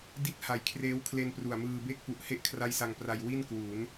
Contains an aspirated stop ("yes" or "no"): yes